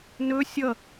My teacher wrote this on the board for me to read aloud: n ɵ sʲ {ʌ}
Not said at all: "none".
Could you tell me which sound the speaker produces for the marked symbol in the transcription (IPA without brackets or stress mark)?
ʌ